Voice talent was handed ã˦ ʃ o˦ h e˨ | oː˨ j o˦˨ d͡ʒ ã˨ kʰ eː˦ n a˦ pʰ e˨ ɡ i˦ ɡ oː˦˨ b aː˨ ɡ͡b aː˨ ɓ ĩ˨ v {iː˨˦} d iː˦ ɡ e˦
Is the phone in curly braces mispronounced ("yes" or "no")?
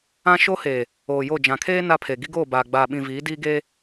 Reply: no